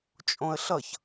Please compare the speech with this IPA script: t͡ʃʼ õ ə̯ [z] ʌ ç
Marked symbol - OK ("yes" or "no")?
no